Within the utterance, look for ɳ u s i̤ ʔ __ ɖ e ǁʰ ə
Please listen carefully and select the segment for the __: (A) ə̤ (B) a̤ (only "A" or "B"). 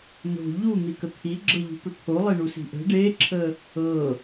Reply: A